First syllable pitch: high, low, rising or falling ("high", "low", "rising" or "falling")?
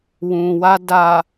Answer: low